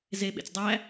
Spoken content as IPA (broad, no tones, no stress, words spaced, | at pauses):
zeɓḛt͡s dˤæ